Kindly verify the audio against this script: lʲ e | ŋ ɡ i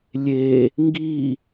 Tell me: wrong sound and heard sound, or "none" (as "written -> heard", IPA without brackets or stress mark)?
none